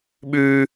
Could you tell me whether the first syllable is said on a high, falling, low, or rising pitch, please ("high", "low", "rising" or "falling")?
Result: high